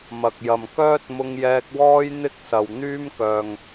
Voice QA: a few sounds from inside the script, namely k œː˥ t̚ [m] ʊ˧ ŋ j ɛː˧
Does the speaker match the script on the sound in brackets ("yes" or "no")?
yes